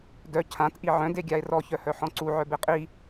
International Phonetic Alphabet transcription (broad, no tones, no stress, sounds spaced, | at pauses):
d œ cʰ ã t ʔ i ʕ œ̃ d e ɡʲ a e̯ r ɔ ç œ h œ ħ ɔ̃ ǀ u ʕ œ b e qʼ i